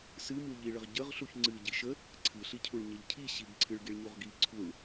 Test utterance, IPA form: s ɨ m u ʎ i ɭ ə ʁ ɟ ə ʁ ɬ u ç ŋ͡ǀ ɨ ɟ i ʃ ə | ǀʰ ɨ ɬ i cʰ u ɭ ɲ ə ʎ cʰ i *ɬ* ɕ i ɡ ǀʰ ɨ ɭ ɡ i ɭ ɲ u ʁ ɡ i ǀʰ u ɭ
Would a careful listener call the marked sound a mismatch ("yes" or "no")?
yes